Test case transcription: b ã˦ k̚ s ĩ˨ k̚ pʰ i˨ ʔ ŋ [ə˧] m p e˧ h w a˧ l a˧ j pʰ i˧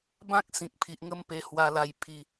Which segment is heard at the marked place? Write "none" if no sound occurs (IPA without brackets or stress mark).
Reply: ə˦